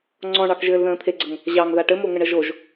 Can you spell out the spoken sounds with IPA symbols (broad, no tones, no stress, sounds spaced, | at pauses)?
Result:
ŋ͡ǀ ɔ̃ ɳ ɑ k ʒ ɘː l ð ə̃ː t̪ʰ e ɡ͡ǀ ə ŋ | ʑ ɑ ŋ ð a ʈ ɘ m o ŋ ə ɳ ə ʒ o ʒ